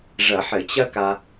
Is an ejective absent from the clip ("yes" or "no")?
yes